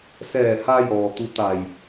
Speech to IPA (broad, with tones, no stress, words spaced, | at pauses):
sɛː˧˩ha˧jɔː˩ t̪u˧˥t̪a˧˩j